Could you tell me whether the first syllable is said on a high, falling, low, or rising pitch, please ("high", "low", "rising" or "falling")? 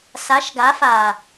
rising